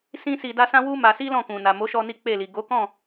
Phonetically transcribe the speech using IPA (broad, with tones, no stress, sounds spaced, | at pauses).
s ĩ˦ s i˧ d a˦ s ã˦ w u˦ m a˧ s i˦ l ɔ̃˦˨ k ũ˨ n a˨ m o˨˦ ʃ ɔ˧ n i˦ k͡p e˦˨ l i˨ ɡ o˨˦ k ɔ̃˦˨